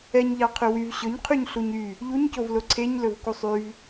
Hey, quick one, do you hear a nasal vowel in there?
no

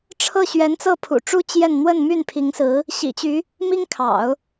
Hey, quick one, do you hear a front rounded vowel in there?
yes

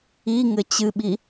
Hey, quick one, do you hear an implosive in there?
yes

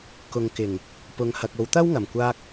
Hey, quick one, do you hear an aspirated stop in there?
no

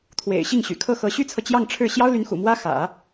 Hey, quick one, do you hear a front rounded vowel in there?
yes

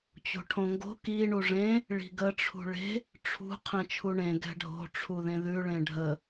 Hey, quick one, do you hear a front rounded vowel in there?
no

